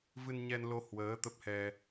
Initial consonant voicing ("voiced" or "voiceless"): voiced